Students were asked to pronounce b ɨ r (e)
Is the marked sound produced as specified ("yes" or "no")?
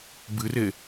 yes